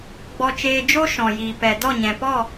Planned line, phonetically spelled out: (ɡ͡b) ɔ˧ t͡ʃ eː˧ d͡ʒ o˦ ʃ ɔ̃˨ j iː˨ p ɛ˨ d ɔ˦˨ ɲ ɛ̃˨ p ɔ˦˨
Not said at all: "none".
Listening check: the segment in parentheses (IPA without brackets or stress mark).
ɡ͡b